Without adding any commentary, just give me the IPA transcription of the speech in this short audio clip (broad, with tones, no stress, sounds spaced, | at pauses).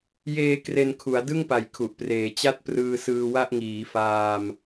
j eː˧ k r e˧ n kʰ u˩˦ a̯ d ɯ˥˩ ŋ p a˩˦ j kʰ u˨˩ ʔ p r eː˩˦ t͡ɕ a˥˩ t̚ p r ɯː˧ s ɯː˧ w a˥˩ ʔ ŋ iː˩˦ f aː˧ m